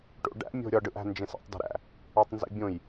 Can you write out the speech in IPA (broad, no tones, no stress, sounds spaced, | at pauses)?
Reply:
ʈ o̰ ɖ æ̰ mʲ o̤ ɾʲ ɒ ɖ ɯ ʔ æ̤ n d͡ʒ ẽ s æ̰ tˤ d ə̤ ɾ æ̰ | ɒ tˤ n z ḛ bʲ õ j